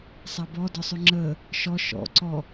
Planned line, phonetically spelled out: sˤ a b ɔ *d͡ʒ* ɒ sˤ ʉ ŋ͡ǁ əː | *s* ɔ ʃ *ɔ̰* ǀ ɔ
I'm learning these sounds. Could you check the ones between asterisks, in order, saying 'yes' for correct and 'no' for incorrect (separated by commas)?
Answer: no, no, yes